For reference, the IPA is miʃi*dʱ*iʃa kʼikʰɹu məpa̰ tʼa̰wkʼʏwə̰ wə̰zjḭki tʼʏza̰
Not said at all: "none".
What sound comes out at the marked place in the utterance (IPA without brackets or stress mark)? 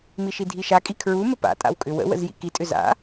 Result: dʱ